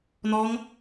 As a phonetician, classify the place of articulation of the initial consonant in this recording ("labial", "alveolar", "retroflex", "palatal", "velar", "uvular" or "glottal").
alveolar